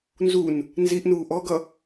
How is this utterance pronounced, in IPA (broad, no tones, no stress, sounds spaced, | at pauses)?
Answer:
n z u n | n z i ʔ n uː ʔ ɔ ɡ ʌ